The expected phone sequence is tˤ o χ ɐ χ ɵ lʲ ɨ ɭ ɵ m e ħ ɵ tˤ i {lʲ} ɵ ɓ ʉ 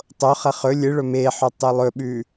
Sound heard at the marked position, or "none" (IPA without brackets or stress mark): lˠ